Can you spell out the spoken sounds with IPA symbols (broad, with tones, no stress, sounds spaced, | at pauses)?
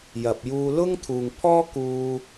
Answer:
j ɐ˨ p̚ j uː˧ l ʊ˥ ŋ t̪ʰ uː˨ ŋ pʰ ɔː˥ k uː˧